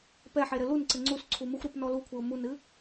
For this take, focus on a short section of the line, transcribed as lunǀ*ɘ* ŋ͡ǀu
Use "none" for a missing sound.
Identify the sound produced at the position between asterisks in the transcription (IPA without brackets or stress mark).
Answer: ɘ